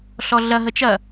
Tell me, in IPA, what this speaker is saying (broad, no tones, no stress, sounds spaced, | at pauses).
ɬ ɔ ɮ ɐ ɦ ə t͡ʃ ɐ